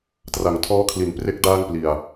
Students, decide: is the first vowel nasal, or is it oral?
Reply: oral